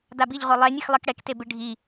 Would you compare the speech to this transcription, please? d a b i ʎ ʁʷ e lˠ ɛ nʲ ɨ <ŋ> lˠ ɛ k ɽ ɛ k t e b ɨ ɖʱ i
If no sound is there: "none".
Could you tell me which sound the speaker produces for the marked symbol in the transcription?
x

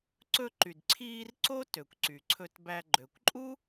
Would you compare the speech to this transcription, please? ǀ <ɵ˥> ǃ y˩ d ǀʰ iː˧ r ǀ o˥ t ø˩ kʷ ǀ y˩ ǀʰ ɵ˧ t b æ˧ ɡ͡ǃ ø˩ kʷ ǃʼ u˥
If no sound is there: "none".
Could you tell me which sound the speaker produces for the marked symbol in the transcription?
ɵ˧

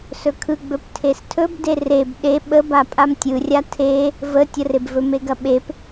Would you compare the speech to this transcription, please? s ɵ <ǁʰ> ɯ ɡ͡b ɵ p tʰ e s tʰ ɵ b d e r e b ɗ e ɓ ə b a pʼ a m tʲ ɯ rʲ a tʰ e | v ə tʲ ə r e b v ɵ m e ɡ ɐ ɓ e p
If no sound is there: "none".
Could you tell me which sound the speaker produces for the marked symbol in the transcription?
kʰ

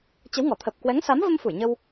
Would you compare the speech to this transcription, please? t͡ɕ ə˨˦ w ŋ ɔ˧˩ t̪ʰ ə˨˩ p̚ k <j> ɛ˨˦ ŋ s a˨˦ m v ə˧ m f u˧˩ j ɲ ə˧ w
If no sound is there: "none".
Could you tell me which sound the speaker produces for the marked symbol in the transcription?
w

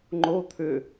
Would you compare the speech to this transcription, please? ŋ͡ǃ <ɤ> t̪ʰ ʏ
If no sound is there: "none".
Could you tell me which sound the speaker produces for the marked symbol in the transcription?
o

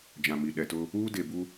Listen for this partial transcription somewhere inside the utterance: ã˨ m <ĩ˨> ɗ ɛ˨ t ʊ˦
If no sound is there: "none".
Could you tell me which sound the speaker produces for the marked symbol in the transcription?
i˨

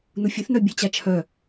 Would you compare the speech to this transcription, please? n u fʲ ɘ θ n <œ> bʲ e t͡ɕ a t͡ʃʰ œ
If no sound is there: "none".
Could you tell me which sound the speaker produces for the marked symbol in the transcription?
œ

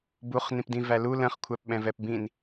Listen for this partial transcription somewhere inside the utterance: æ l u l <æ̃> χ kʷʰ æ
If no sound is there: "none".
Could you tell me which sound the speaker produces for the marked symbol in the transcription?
ə̃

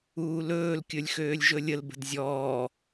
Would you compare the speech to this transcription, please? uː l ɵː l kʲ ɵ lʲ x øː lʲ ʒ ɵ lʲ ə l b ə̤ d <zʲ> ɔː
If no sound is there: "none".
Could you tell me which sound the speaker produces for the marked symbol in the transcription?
zʲ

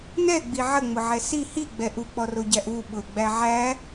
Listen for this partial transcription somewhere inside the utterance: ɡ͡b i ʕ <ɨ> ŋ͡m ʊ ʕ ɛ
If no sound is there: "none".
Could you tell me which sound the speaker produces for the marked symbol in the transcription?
ə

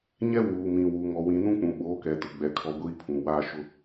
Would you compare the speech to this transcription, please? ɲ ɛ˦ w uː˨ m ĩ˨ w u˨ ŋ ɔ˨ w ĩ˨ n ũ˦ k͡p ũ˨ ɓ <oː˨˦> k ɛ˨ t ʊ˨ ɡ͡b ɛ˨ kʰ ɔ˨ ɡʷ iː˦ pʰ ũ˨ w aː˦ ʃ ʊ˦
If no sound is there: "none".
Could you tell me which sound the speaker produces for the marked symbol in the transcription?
oː˨˦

